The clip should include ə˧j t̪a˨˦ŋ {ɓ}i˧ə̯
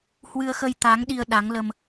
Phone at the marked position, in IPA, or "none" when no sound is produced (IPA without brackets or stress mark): ɗ